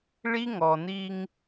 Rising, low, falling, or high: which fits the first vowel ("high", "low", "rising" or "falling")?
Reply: high